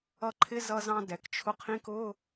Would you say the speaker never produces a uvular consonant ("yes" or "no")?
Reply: no